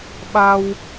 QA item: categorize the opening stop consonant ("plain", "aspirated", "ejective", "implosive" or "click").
implosive